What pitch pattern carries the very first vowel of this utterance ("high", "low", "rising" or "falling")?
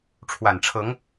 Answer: low